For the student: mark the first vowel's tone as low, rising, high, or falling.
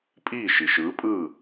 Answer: falling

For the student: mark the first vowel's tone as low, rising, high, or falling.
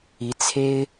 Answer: rising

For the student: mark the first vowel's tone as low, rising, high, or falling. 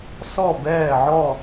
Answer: falling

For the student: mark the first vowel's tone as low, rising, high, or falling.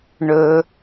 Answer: low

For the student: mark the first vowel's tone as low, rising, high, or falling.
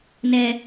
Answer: low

